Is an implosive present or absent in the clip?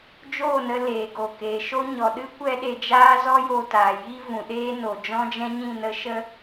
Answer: present